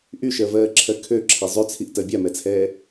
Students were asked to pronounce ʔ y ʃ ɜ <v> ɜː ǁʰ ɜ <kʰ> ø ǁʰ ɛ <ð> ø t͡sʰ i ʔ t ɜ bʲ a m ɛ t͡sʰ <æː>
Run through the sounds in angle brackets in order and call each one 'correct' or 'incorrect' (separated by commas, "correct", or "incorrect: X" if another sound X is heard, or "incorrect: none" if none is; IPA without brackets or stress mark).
correct, correct, incorrect: zˤ, incorrect: ɛː